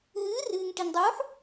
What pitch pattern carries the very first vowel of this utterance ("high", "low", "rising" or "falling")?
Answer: rising